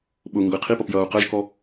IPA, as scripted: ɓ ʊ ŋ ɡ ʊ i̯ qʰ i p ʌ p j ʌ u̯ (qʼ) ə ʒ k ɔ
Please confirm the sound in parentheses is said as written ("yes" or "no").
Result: no